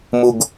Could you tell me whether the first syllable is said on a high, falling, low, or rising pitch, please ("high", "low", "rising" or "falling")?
high